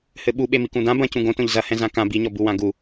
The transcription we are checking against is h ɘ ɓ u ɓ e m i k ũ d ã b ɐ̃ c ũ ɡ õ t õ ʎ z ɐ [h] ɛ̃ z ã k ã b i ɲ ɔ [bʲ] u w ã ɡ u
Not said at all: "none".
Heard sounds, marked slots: h, b

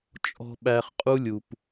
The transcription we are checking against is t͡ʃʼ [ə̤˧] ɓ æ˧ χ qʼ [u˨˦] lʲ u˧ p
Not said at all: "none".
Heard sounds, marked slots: ɔ̤˧, u˦

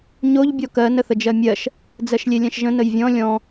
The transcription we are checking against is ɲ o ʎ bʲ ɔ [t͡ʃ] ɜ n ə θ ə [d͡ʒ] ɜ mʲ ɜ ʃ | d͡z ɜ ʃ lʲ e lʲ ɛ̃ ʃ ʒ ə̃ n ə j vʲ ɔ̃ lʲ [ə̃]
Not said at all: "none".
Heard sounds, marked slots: k, d͡ʒ, ɔ̃

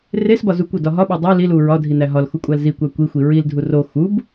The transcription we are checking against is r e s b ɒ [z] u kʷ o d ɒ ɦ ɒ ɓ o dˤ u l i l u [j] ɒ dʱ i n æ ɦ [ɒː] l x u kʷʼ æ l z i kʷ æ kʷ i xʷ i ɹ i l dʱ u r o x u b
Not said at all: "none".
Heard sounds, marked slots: z, ɹ, ɒ

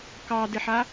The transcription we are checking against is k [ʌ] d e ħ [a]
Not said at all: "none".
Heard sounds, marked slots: ɑ, a

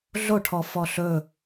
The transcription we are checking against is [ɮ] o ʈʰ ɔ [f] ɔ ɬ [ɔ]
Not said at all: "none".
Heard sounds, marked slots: ɮ, f, ɵ

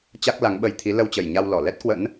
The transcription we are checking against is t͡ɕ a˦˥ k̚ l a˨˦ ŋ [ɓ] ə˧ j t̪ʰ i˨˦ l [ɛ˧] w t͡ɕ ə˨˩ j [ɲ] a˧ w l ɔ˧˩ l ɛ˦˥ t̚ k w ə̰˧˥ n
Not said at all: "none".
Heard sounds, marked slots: ɓ, ə˧, ɲ

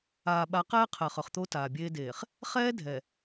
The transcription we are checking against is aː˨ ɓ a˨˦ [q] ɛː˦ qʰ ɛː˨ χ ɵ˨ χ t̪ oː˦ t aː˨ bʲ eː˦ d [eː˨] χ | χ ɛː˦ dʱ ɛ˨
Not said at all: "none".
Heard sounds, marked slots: q, eː˨

